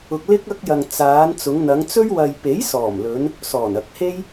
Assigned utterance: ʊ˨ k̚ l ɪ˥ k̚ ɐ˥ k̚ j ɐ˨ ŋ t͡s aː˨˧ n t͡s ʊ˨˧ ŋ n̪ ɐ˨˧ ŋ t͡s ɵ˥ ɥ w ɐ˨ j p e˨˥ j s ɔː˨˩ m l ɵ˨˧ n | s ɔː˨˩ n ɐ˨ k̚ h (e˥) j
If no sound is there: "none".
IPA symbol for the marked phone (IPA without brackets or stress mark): e˥